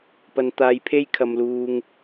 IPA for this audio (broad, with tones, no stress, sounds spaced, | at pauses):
p ɐ˥ n t̪ aː˥ j pʰ e˥ j kʰ ɐ˧ m l uː˧ ŋ